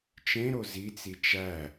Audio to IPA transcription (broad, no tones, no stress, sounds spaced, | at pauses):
t͡ʃ ẽ ɾ o z i t͡s i t͡ʃ æ